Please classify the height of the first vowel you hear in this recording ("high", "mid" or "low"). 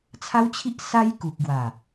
low